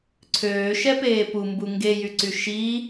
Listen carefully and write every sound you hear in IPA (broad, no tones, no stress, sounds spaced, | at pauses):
ǀʰ øː ʃ ɛ p eː p u m b u ŋ ɡ e j y ǀ y ʃ i